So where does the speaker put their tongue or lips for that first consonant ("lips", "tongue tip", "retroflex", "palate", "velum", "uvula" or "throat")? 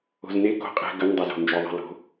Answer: tongue tip